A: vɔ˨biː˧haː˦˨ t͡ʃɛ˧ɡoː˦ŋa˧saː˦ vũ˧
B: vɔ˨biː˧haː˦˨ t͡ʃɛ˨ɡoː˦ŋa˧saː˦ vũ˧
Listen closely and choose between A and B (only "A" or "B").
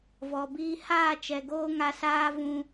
B